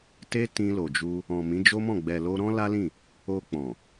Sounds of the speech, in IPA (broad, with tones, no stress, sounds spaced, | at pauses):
t e˦ t ĩ˧ l o˨ d͡ʒ u˧ | ɔ̃˨ m ĩ˨˦ d͡ʒ o˦ m ɔ̃˦˨ ɡ͡b ɛ˨ l o˧ ɾ ɔ̃˦ l a˦ l ĩ˦˨ | o˧ k͡p ɔ̃˨